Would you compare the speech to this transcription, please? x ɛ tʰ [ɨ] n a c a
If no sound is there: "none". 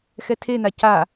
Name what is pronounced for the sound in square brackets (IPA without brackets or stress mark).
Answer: e